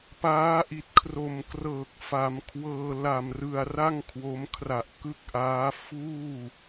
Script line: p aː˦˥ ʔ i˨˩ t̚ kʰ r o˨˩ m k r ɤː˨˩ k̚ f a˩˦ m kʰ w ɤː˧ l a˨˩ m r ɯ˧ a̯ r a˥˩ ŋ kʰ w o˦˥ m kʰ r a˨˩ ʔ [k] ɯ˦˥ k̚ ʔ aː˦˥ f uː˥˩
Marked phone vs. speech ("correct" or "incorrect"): correct